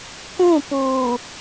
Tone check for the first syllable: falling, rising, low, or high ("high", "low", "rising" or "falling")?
falling